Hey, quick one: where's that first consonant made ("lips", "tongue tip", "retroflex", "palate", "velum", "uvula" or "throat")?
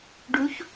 retroflex